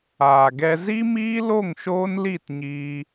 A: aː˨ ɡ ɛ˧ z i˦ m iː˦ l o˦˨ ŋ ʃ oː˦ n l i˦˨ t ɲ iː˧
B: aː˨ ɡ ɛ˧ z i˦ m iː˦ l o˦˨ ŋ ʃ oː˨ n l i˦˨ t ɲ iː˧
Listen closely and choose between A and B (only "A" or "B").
A